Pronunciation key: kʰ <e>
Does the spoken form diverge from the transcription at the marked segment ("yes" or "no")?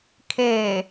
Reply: no